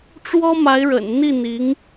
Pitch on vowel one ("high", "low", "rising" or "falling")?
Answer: high